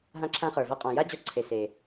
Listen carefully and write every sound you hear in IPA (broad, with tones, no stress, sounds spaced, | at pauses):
ɦ ã˧ ǁʰ ã˧ χ ə˞˩ v a˧ qʼ ɔ̃˩ j a˥ d͡ʑ ɔ˧ ǀʰ e˩ s e˩